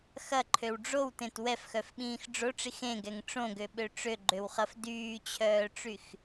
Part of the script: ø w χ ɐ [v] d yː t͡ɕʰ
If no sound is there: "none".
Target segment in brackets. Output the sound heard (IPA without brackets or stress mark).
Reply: f